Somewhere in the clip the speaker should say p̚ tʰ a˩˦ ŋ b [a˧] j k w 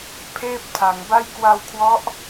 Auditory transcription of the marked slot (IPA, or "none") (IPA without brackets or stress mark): a˥˩